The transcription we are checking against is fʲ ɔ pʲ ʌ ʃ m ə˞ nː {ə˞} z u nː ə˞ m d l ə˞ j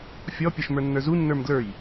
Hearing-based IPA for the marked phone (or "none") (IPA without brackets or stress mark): ə˞